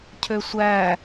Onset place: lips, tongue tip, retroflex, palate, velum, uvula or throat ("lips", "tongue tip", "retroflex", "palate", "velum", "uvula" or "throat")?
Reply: palate